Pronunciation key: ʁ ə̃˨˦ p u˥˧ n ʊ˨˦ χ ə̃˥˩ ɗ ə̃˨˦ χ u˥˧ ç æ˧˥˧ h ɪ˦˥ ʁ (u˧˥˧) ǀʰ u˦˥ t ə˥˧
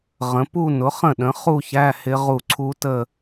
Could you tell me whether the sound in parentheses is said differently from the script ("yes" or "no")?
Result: yes